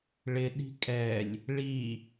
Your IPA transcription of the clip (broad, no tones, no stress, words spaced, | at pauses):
ɭɪ ɗi̤kʼɛlʲ | ɭi